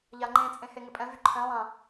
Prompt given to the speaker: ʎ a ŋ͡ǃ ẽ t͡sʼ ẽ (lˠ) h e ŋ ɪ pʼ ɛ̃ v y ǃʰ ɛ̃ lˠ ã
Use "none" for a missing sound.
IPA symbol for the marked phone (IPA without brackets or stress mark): none